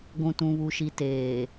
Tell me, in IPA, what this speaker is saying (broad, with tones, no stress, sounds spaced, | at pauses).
ɡʷ ũ˨ t ũ˨ β u˨ ʃ i˨ t eː˨